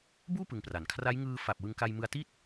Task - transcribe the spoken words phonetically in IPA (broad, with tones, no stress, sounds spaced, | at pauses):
b uː˥˩ p ɯ˧ ŋ p r a˩˦ n kʰ r a˦˥ j ŋ ɯː˧ f a˨˩ p̚ w ɯ˧ ŋ k a˧ j m ɯ˧ a̯ t i˥˩ t̚